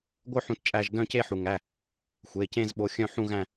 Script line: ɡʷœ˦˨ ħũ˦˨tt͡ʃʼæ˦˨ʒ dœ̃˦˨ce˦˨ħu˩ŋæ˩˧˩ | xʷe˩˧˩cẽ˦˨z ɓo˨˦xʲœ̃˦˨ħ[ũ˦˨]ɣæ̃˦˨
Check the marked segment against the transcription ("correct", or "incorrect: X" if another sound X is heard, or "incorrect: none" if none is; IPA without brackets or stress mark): correct